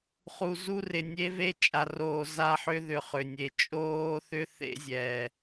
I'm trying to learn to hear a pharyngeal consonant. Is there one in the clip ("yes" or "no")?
yes